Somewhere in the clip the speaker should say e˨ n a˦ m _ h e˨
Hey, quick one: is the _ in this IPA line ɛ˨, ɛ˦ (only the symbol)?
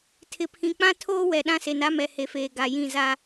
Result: ɛ˨